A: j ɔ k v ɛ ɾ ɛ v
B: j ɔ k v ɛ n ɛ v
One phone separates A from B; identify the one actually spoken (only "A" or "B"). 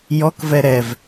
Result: A